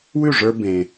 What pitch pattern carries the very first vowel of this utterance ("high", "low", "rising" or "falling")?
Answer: falling